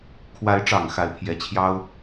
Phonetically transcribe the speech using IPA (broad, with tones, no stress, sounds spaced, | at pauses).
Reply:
kʰ w a˧˥ ɪ̯ ʈ͡ʂ ɑ˨˩ ŋ x a˧˥ ɪ̯ pʰ j ɛ˧˥ t͡ɕʰ j ɑ˥ ʊ̯